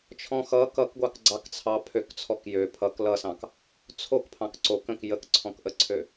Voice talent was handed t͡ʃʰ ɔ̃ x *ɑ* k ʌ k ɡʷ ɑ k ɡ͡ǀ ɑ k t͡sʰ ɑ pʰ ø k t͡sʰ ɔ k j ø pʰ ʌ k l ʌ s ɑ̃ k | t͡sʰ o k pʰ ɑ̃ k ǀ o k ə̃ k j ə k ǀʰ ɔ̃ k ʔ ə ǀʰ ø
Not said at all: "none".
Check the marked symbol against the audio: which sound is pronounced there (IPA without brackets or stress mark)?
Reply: ʌ